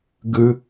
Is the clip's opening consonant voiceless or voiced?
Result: voiced